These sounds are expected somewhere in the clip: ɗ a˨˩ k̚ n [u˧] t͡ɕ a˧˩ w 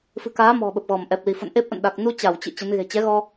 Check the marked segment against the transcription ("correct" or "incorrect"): correct